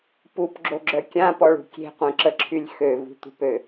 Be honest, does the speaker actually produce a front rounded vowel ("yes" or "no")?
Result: yes